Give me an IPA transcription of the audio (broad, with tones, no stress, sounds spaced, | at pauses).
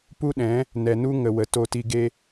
p u˦ ɗ ɛ̃˨˦ | n ɛ˨ n u˦ ŋ ə˨ w ə˨ t o˧ t i˧ ɡ e˦